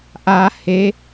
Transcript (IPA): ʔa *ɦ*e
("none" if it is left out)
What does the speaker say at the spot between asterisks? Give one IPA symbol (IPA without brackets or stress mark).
h